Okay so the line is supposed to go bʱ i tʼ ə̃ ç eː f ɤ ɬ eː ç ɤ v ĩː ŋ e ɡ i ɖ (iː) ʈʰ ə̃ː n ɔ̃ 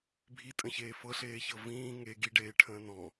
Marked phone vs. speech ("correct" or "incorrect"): incorrect